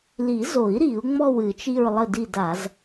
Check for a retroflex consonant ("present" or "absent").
absent